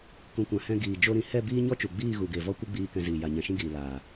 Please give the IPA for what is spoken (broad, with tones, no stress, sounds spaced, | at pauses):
k ũ˨ kʷ ã˨ h ɛ̃˧ ɡ iː˨ d͡ʒ o˦ ɾ ĩ˨ h ɛ˦˨ b iː˦ ɲ ɔ˦ t͡ʃ u˨ ɡ͡b iː˦˨ ɣ u˨ ɡ e˨ v ɔ˦ kʷ ɨ˦ ɡ͡b iː˧ k ɛ̃˧ z iː˨ j a˨ ɲ ɛ̃˨ ʃ ĩ˦ ɡ iː˨ l aː˨